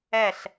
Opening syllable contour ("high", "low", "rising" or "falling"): falling